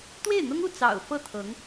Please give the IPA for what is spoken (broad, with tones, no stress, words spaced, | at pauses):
t̪we˥˩ɪ̯n̪ʊ˥ŋu˥˩ t͡sɑ̰˨˩ʊ̯ fɤ˥˩t̪ʰɤ˧˥ŋ